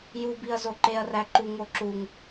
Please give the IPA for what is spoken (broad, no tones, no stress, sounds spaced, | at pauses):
j u b i ɐ̯ z o ǃ e ɐ̯ r æ ǃ u ŋ o ǁ u ŋ